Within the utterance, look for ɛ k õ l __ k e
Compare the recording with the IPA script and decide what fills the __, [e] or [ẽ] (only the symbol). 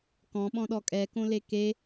e